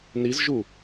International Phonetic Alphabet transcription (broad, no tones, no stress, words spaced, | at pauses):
nizʒu